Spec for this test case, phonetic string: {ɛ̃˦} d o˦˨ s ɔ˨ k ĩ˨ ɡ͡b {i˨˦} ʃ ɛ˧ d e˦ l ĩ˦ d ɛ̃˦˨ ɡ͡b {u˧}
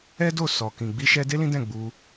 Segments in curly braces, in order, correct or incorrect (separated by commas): incorrect, correct, correct